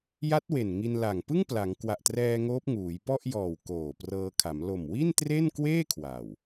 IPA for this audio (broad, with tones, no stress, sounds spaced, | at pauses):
j a˦˥ t̚ w e˨˩ n ŋ i˧ n l a˨˩ ŋ p ɯ˥˩ ŋ p l a˩˦ ŋ k w a˨˩ ʔ t r ɛː˧ ŋ oː˦˥ p̚ ŋ uː˩˦ j p ɔ˥˩ ʔ j ɔː˨˩ w k oː˨˩ p r ɤː˧ kʰ a˩˦ m l o˨˩ m w i˥˩ n t r e˥˩ n k w eː˥˩ kʰ w a˨˩ w